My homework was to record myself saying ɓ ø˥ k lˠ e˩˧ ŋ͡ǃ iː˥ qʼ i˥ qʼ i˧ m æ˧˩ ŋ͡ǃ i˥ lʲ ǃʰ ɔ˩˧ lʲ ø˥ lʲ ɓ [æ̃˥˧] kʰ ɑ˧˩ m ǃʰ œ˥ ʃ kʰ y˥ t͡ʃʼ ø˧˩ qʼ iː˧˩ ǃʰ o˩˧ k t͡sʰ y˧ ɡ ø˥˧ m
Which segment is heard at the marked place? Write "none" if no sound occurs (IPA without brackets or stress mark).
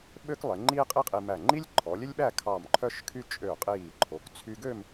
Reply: æ˥˧